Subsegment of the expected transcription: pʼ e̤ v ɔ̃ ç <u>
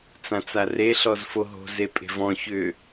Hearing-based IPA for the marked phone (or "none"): ʏ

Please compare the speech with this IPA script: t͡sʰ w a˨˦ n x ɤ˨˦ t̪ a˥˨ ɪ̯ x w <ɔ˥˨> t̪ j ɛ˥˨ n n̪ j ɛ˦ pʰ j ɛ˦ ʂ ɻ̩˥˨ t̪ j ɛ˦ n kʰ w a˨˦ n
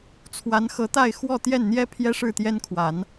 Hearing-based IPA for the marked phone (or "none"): ɔ˥˨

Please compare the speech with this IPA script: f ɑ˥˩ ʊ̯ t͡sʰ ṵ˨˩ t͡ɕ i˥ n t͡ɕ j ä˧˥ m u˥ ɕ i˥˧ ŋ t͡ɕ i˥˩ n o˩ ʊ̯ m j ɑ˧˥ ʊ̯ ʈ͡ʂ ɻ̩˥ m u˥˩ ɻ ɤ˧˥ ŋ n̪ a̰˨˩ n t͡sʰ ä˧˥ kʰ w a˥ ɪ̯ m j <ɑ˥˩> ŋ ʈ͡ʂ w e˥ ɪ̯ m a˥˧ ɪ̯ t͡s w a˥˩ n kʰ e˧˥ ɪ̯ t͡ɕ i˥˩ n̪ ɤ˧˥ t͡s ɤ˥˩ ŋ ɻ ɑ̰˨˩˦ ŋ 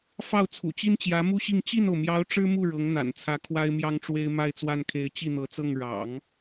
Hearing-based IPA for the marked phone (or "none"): ɑ˥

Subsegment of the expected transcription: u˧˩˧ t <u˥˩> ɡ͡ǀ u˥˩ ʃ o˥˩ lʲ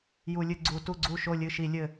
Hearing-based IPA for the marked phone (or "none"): u˥˩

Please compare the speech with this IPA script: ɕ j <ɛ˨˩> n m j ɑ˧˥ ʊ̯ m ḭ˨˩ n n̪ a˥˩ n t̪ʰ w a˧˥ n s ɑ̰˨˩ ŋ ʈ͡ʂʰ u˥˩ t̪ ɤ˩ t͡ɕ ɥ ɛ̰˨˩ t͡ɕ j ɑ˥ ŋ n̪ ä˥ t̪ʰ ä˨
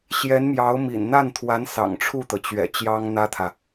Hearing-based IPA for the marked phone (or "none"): ɛ˧˥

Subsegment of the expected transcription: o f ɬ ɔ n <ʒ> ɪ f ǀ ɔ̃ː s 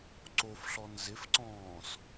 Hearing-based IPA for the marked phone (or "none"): z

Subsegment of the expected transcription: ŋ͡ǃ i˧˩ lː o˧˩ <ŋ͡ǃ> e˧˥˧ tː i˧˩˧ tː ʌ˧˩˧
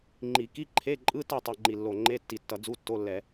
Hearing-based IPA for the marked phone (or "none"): ŋ͡ǃ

